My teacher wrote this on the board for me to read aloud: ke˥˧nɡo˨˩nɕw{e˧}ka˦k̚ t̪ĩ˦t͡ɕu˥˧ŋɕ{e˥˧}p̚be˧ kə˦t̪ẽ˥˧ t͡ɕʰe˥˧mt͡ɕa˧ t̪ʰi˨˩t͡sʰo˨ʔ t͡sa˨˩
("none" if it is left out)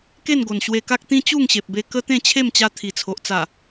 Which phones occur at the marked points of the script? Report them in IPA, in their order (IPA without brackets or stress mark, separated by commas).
e˧, e˨